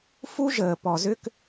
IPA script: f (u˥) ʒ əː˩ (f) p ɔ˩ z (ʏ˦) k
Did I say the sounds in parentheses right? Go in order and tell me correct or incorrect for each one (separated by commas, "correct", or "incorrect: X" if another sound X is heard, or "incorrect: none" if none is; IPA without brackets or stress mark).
correct, incorrect: none, correct